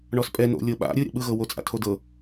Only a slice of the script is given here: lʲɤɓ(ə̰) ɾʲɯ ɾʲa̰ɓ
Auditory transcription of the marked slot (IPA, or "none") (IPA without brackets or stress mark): a̰